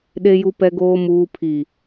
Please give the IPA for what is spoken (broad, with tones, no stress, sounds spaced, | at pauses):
ɗ e˨ j u˨ p ɛ˨ ɡ oː˨ m uː˨ pʰ i˨